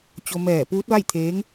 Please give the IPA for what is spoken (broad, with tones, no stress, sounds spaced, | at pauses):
t͡ɕ o˧ m ɛː˧˩ p uː˧˥ t̚ ʋ a˥˨ j t̪ʰ eː˧˥ ŋ